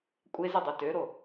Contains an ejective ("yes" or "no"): yes